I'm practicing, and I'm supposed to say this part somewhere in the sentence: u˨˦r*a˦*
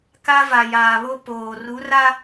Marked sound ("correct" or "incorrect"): correct